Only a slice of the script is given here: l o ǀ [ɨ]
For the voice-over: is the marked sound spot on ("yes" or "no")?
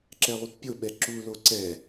no